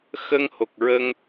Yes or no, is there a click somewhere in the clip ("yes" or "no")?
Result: no